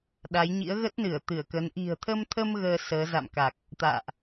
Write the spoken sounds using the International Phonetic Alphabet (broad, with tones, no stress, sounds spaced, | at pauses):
ɗ a˨˦ j ɲ ḭ˧˥ ə̯ ɣ ə˦˥ t̚ n ɨ˧˩ ə̯ t̪ ɨ˧˩ ə̯ k ə˨˦ n ʔ i̤˨˩ ə̯ t̪ʰ ə˧ m t̪ʰ ə˧ m ɣ əː˧ s əː˨˦ z a̰˧˨ m k a˨˩ k̚ | t̪ a̰ː˧˨ ʔ